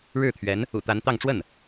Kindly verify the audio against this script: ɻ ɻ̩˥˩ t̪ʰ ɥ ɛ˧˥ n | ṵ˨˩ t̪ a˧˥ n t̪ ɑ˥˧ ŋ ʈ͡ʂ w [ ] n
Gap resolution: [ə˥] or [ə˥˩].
ə˥˩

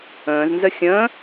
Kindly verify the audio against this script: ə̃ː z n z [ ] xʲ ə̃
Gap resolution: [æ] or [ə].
ə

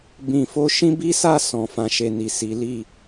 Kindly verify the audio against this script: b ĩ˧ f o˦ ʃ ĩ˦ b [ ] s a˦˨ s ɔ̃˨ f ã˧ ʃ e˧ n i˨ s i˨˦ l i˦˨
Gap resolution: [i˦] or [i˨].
i˦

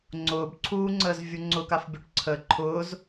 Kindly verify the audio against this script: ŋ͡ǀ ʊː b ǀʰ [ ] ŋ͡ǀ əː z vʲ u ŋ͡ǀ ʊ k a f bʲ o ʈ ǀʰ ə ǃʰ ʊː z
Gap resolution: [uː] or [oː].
uː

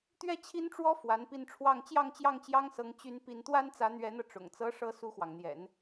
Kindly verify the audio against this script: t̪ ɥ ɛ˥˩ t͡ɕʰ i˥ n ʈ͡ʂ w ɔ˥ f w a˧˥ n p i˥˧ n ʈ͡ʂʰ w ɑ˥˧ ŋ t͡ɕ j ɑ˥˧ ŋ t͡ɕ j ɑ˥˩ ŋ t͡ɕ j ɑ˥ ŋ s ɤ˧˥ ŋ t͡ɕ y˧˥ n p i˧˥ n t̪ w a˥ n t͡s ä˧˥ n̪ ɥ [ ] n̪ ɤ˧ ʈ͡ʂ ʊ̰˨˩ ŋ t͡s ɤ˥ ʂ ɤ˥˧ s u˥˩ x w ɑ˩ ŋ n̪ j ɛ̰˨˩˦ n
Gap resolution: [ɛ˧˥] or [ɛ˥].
ɛ˧˥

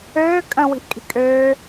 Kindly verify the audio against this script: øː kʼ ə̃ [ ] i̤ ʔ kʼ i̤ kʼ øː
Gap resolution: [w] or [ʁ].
w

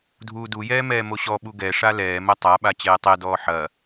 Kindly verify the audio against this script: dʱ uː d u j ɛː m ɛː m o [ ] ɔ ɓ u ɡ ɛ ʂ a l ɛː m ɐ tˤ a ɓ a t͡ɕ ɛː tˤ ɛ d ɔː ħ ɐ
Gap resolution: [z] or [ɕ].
ɕ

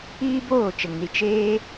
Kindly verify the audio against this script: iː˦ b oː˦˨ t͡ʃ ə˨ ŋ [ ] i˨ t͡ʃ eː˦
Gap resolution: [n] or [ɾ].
n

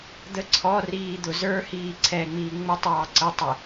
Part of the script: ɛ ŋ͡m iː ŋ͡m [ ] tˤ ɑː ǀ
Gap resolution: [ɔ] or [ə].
ə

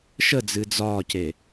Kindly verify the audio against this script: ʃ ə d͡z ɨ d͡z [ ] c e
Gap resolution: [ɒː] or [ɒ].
ɒː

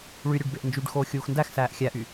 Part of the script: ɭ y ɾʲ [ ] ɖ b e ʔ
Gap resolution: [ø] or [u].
ø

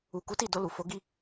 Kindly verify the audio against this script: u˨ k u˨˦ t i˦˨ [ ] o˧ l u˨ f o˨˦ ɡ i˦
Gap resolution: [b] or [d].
d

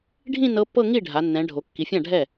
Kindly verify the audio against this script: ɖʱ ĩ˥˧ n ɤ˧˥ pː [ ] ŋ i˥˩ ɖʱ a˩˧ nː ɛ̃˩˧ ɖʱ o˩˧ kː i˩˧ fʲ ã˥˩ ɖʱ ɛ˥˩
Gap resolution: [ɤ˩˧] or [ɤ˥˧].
ɤ˥˧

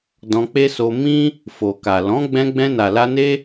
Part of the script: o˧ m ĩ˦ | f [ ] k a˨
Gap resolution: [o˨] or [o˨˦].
o˨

